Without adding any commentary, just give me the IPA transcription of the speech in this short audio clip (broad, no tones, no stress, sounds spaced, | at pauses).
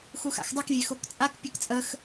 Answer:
x u x a̰ x dˤ ɨ k vʲ e x o k t͡sʼ a k pʲ ɨ k t͡sʼ ə x